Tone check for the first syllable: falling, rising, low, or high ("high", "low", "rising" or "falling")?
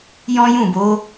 high